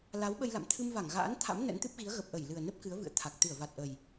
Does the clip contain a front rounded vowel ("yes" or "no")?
no